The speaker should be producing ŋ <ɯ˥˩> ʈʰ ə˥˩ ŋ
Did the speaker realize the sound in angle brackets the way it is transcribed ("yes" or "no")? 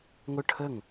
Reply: no